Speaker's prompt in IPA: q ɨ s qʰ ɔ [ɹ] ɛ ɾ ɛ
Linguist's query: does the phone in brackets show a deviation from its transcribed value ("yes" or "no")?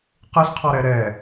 yes